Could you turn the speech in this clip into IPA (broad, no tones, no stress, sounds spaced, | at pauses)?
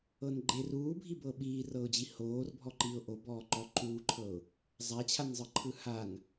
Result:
ɤ n ɡ͡ǃ e r uː bʱ i b ɤ ɓ iː r ɤ ʊ̯ d͡ʑ i h oː r bʱ ɔ ǃ i ʊ̯ ʔ o b ɔː ǃ ɔ ǃ uː ǃʰ ɤ ʊ̯ | zˤ a t͡ɕʰ a n zˤ ɯ ǃʰ ɯ h a n